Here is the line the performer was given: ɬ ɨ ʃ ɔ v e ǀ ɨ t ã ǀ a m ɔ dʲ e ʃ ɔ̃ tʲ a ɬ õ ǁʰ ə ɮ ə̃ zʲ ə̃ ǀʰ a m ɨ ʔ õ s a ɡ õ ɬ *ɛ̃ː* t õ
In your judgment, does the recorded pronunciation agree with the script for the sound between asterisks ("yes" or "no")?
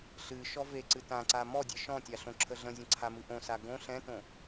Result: no